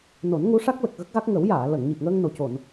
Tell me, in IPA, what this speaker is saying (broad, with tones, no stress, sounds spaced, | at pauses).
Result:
n o˨˩˦ n ŋ u˧˥ ʂ a˦˥ k̚ l ə˨˩ k̚ ɣ ə˦˥ k̚ ɣ a˦˥ k̚ ŋ ə˨˩˦ w j aː˨˩˨ l ə˨˩˨ ŋ ɲ i˨˩ p̚ ŋ əː˧ ŋ n o˨˩ c o˨˩˨ n